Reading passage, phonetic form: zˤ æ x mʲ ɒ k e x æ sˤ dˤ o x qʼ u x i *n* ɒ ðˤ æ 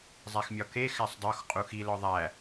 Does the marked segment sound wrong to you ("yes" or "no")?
yes